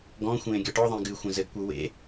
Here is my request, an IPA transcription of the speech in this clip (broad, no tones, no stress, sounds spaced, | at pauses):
ɡ ɔ̃ xʷ ẽː ɡʲ ɔ ʈ ɔ ðˤ ẽ ɡ ɨ xʷ ẽ z ɘ ɡ kʷ ɘ w ḛ